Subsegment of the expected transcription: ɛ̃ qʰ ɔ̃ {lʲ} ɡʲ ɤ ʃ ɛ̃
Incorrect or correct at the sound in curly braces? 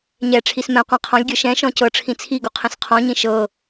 correct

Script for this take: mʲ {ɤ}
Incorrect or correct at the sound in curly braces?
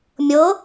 correct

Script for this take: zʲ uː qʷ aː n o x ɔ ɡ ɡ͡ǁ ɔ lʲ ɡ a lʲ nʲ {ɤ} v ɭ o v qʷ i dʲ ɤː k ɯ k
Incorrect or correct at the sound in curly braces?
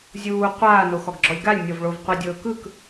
correct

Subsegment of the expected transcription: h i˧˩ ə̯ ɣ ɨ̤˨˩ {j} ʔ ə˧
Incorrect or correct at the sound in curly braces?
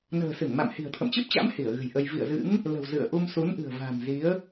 correct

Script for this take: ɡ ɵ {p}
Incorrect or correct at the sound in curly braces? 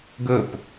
correct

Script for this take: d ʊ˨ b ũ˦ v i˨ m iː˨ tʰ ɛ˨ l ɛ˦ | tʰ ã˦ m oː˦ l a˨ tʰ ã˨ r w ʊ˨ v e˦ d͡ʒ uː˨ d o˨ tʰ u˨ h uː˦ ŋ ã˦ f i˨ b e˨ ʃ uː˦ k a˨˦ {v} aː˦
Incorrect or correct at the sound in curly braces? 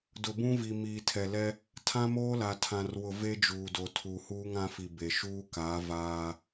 correct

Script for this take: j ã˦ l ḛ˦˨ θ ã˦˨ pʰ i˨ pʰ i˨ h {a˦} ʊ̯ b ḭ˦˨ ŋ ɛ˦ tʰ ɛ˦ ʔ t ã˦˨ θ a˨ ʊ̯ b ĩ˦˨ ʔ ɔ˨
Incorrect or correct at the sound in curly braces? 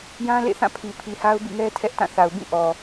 correct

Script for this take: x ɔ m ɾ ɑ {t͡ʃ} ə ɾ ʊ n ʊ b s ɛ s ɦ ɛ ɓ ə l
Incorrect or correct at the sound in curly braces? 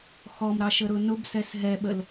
incorrect: ʃ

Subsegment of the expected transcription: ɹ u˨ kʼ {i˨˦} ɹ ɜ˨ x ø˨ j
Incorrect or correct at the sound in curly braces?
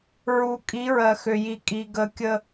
correct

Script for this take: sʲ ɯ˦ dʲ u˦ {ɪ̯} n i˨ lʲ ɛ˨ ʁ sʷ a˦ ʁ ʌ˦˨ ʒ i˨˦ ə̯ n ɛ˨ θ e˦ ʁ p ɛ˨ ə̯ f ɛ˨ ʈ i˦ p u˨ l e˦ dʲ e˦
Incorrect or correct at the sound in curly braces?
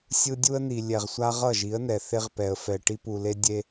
incorrect: ə̯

